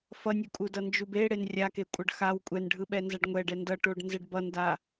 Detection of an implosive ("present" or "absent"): present